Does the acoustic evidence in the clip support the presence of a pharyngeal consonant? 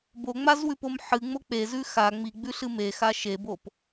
yes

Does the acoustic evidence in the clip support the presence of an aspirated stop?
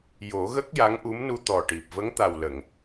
no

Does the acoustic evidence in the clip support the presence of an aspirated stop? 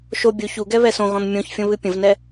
no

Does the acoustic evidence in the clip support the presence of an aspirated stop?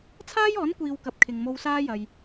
yes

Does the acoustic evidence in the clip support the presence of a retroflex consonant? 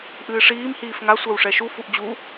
yes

